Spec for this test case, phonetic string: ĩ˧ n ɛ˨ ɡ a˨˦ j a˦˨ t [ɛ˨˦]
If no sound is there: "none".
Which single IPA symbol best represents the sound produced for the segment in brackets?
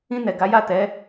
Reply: ɛ˨˦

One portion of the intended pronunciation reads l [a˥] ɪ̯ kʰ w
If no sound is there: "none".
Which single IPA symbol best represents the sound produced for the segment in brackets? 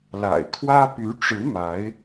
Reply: a̰˨˩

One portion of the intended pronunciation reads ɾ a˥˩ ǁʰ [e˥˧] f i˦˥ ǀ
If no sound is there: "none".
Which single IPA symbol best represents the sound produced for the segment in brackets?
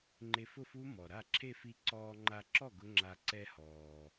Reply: e˥˧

